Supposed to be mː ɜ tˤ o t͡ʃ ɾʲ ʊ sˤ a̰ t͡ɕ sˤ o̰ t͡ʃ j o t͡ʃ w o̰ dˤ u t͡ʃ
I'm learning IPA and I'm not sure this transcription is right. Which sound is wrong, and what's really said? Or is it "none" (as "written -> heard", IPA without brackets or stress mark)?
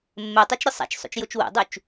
t͡ɕ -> t͡ʃ